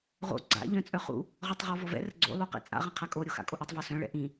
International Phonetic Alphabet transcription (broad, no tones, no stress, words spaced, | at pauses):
ʁo̰ ɡ͡ǀa̰ ʎœ̃t͡sʼœχṵ | ʁɔtˤʁɔvɔvɛ̰ rə̰ɡ͡ǀo̰ lˠoqɛ̰t͡sʼa̰ ʁə̃qʰakʼo ɾʲoxa̰kʼoʔɛtˤ vɔsœ̃ ɭɛ̰ʔĩ